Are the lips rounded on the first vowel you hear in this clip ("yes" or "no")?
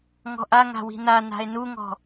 yes